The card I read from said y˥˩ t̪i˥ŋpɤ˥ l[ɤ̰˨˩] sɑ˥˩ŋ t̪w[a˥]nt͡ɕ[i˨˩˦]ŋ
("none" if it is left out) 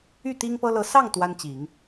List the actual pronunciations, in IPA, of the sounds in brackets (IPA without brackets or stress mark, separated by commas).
ɤ˧˥, a˥, i˨˩˦